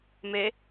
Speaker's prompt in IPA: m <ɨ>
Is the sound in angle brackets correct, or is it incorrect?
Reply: incorrect